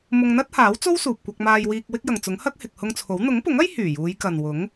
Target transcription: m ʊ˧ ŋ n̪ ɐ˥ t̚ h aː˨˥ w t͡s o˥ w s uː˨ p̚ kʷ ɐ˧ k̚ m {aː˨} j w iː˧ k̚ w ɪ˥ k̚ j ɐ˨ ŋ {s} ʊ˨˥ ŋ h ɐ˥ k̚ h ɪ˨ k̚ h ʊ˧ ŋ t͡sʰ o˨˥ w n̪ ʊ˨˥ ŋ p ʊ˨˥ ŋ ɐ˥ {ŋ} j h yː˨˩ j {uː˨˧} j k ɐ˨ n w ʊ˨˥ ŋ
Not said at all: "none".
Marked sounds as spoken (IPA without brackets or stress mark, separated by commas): aː˧, t͡s, none, uː˨˧